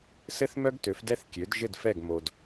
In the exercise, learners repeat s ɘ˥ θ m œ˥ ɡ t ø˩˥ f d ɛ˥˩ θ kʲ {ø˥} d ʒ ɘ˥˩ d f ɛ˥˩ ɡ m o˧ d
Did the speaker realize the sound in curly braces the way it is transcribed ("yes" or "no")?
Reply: no